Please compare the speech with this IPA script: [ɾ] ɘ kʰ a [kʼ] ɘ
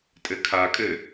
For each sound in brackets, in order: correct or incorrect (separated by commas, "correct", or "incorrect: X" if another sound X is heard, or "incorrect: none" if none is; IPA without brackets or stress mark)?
incorrect: tʼ, correct